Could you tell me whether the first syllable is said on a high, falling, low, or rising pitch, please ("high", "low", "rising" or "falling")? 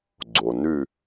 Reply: low